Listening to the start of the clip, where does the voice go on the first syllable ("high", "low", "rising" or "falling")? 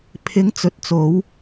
rising